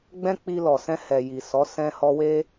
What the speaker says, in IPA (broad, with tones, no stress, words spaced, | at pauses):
ɡ͡bɛ̃˦k͡pi˧lɔ˨ sɛ̃˧hɛ˨ji˨sɔ˨˦ sɛ̃˧hɔ˧we˦